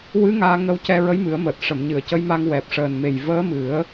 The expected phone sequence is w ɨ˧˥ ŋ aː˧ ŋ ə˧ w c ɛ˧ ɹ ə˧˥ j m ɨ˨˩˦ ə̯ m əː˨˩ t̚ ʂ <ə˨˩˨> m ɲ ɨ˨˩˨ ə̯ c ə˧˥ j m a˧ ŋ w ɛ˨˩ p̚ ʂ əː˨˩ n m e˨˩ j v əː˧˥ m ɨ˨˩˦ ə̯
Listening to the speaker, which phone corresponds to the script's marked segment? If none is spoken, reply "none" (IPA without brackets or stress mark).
ə˨˩˨